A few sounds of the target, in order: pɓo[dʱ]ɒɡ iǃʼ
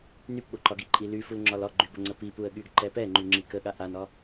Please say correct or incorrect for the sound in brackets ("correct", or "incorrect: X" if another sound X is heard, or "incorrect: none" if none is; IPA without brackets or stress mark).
incorrect: ǃ